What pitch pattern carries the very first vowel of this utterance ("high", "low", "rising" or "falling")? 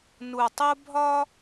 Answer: low